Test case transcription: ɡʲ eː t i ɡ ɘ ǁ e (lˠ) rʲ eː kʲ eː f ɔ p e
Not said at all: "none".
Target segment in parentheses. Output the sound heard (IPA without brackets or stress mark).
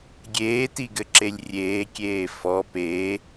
lʲ